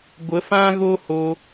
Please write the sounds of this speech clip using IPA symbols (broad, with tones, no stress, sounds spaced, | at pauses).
ɡʷ ə˨˦ f ã˦ ɣ o˦ h o˧